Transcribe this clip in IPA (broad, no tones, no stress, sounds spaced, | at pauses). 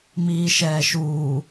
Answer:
m iː ʃ ɛː ʃ uː